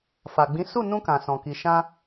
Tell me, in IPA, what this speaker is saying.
f a˨ ɡ͡b ĩ˨˦ s u˦˨ n ũ˧ k ã˨ s ɔ̃˨ k i˨ ʃ ã˧

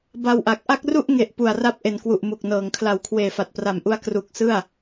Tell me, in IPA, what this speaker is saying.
b a˧ w ʔ a˨˩ k̚ ʔ a˥˩ k̚ r u˥˩ ʔ ŋ e˨˩ ʔ p u˨˩ a̯ r a˥˩ p̚ ʔ e˩˦ n k w u˨˩ ʔ m u˨˩ k̚ n ɤː˩˦ ŋ kʰ l a˨˩ w kʰ w eː˨˩ f a˨˩ t̚ p r a˨˩ m ʔ u˧ a̯ k r u˨˩ k̚ s ɯ˥˩ a̯

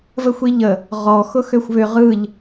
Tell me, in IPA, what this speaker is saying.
v ə xʷ i ʎ ə | ʁ ɔ x ʊ x ø xʷ β ʏ ʁ ɯ ʎ

